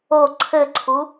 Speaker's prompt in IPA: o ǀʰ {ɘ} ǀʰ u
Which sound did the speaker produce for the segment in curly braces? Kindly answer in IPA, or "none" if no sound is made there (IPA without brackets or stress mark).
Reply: ɘ